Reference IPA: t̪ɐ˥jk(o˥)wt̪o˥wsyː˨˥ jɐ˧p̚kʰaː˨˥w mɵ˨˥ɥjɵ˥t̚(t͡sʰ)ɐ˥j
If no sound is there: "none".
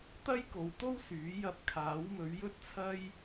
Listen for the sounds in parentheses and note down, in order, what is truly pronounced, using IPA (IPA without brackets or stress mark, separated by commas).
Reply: o˨˧, t͡sʰ